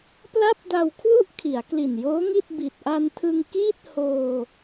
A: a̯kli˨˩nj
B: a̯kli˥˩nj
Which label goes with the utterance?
A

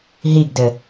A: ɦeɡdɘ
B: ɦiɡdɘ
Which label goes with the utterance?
B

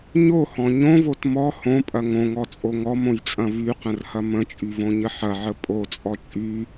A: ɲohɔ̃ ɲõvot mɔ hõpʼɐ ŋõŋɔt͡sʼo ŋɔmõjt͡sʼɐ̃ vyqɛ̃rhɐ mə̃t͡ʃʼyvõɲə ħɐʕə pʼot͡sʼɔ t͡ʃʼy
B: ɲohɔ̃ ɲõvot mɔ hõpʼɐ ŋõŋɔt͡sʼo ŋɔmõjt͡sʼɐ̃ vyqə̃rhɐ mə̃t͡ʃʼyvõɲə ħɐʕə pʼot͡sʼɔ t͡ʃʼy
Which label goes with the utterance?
B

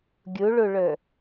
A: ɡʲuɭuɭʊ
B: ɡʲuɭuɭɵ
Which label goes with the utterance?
B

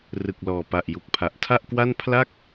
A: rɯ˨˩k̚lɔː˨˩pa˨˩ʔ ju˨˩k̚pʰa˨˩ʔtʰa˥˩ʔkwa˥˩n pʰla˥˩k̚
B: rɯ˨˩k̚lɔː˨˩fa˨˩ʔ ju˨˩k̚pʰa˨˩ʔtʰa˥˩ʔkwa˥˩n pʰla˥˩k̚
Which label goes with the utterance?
A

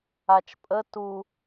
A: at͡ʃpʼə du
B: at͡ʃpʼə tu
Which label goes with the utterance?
B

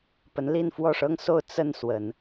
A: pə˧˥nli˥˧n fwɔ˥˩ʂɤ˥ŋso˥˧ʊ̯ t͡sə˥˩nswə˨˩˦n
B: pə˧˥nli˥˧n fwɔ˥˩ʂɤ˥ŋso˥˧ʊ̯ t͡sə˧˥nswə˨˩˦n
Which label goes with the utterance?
A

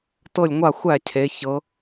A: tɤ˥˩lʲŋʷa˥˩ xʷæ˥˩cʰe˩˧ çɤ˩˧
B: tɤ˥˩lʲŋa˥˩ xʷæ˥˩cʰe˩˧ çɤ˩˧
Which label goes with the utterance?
A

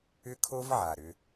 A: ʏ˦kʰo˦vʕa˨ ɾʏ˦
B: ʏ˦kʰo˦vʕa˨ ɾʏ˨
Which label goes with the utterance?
A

